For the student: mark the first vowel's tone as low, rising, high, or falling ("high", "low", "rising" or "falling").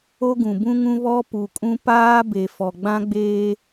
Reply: high